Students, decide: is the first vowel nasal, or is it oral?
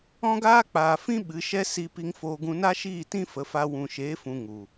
nasal